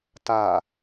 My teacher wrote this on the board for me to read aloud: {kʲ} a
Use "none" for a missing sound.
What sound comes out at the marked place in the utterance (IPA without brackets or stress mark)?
t